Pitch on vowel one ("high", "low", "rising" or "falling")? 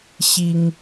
high